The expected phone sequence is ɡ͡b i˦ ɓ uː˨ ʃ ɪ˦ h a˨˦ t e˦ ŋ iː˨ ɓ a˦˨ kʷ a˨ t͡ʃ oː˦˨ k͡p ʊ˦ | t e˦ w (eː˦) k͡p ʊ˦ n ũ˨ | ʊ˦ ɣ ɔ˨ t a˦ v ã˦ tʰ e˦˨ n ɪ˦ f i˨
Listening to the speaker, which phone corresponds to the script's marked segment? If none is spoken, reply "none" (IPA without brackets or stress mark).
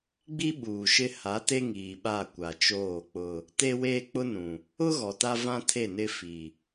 eː˦